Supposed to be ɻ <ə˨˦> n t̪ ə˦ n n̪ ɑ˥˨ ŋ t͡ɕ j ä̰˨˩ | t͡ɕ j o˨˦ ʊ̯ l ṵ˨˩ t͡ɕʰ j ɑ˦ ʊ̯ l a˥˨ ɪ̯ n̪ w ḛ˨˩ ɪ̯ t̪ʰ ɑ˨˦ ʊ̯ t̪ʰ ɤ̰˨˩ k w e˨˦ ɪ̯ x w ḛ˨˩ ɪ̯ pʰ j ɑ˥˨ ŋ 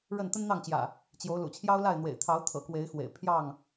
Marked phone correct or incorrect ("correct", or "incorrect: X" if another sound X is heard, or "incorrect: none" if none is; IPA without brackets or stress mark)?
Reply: incorrect: ə˥˨